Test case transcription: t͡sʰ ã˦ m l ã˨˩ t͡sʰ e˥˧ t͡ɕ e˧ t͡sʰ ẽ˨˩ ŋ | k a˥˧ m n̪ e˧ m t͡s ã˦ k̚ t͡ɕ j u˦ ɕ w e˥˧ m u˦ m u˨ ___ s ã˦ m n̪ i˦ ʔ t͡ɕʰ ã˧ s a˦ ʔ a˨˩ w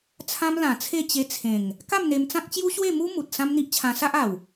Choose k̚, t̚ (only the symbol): t̚